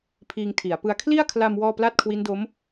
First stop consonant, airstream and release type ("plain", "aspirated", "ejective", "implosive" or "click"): aspirated